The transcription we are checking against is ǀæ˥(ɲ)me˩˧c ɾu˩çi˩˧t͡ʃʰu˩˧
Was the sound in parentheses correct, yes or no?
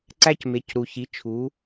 no